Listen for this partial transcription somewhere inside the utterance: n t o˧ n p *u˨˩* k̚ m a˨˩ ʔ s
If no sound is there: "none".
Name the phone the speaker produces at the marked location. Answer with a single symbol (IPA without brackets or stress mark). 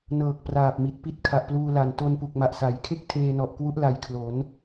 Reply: u˨˩